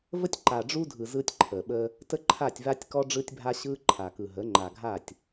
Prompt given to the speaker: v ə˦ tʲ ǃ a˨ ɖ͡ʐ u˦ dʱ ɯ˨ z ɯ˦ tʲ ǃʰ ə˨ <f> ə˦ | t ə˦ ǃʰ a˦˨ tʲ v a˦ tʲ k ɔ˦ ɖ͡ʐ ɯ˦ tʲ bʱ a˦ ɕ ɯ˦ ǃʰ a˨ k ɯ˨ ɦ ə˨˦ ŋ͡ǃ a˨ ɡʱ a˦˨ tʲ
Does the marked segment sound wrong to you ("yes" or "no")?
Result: yes